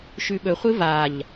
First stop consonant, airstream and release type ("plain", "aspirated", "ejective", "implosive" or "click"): implosive